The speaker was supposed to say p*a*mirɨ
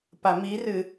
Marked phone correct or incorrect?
correct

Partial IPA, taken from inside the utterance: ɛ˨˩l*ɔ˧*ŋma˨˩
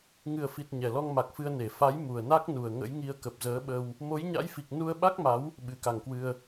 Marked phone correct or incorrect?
correct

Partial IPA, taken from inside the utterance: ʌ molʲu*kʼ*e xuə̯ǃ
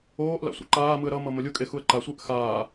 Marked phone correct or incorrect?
correct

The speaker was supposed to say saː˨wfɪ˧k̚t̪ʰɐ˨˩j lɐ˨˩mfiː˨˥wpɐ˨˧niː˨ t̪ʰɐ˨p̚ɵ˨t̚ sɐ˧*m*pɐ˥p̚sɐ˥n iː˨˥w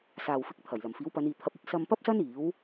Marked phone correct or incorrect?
correct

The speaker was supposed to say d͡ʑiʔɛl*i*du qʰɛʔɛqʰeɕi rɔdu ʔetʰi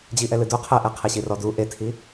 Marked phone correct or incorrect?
incorrect: ɨ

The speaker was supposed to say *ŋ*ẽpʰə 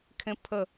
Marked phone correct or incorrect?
incorrect: kʰ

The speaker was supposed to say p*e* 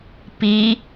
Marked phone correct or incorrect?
incorrect: i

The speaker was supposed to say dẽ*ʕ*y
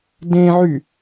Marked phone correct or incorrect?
correct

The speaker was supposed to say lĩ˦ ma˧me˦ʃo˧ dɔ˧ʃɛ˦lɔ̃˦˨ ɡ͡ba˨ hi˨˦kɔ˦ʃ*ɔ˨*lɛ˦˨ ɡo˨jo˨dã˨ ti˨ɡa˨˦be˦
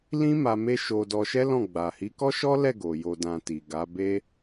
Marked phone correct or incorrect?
incorrect: ɔ˦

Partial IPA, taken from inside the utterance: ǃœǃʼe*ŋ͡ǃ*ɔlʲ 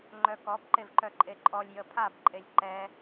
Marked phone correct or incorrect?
incorrect: ǃʼ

